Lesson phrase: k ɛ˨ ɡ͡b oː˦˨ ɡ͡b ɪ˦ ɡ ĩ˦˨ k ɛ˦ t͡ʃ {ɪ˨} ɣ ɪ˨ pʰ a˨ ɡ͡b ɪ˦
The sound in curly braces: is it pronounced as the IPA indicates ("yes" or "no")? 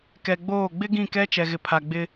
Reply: no